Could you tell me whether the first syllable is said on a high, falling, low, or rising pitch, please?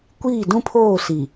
falling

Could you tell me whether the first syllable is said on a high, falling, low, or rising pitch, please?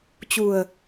low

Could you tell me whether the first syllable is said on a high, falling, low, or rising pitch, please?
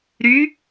rising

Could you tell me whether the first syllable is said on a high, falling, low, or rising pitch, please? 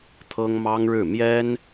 high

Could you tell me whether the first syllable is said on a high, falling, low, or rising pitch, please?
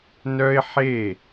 high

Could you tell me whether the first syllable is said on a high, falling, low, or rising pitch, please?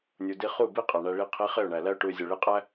low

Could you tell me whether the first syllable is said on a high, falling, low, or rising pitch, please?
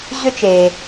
high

